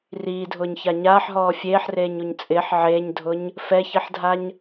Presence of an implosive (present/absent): absent